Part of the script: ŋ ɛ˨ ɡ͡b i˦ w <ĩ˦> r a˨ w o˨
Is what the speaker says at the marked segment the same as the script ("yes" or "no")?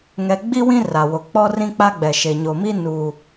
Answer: yes